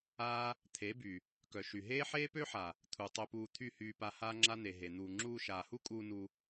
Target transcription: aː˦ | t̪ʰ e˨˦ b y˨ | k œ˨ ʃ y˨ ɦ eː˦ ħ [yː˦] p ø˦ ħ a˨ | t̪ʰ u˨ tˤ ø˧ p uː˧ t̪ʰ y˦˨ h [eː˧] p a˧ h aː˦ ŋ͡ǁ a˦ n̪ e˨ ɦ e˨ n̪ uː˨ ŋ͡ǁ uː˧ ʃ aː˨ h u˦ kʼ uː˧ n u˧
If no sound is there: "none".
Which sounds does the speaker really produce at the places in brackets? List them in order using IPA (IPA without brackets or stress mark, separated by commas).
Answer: eː˦, yː˧